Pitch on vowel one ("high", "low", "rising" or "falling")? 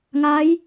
rising